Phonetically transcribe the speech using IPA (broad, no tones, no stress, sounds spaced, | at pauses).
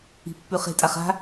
i̤ pː ʉ χ e̤ tʼ a χ a̤